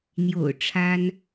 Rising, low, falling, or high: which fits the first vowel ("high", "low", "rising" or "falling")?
low